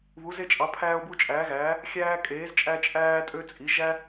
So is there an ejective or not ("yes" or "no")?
yes